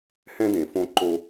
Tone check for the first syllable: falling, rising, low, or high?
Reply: high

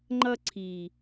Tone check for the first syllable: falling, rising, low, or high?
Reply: high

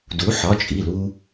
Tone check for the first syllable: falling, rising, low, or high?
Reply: rising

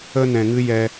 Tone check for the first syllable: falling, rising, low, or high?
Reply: high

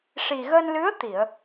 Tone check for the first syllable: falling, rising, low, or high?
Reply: low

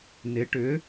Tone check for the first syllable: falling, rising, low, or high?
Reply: rising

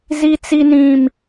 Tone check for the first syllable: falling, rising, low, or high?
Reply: high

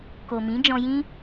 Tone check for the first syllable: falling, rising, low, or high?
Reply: low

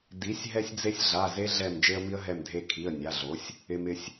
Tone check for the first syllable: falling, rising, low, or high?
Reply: rising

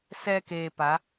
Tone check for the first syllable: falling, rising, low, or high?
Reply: low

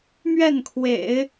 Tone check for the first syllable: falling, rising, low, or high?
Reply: falling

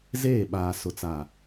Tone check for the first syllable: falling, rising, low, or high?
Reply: falling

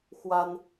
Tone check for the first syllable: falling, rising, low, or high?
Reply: high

